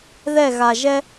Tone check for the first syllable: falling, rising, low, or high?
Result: falling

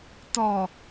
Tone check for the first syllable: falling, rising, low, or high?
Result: low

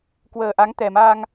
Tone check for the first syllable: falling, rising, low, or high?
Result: low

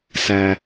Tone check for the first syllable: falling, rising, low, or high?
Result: low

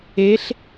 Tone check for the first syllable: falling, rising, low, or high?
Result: rising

